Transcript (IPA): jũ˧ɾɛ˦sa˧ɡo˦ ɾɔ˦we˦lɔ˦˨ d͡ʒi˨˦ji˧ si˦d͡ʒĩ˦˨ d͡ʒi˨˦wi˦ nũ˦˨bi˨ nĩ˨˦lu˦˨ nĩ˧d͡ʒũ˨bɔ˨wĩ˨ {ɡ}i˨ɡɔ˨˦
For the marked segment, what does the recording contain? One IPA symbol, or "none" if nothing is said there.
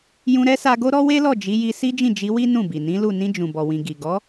ɡ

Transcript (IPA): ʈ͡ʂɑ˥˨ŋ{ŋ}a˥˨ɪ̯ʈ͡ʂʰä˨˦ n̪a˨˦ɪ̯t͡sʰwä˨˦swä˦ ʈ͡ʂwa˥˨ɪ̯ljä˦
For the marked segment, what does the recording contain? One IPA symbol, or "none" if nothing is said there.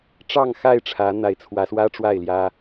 x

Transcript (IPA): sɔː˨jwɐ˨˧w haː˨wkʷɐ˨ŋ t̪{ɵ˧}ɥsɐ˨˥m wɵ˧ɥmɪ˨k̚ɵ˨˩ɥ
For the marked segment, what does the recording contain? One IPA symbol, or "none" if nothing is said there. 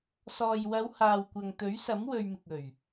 ɵ˨˥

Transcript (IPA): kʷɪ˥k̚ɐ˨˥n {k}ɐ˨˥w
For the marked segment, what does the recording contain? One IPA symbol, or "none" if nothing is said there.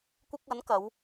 k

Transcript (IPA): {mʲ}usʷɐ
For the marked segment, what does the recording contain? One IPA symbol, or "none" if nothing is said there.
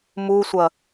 m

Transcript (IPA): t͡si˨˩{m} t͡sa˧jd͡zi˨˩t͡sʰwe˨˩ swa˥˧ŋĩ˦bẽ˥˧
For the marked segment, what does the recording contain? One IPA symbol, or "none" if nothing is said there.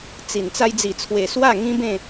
n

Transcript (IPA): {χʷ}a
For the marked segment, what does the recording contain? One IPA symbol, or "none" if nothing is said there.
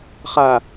χ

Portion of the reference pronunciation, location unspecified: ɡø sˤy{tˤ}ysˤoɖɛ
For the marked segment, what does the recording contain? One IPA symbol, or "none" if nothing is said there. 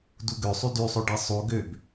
d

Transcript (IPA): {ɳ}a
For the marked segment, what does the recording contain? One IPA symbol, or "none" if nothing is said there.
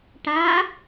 ʈ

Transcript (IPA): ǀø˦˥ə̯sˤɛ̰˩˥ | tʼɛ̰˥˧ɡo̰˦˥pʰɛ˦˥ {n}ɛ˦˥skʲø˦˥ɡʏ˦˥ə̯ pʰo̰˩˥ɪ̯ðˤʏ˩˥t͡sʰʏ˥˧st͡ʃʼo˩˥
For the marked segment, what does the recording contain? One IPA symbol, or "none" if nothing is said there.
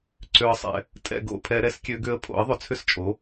ɾ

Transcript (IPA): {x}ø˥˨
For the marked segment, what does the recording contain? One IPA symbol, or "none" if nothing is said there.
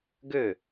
ɡ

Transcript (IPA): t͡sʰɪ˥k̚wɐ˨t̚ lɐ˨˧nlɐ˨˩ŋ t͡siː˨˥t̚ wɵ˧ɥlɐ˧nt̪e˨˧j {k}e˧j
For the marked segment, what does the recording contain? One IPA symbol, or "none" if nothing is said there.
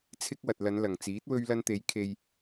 kʰ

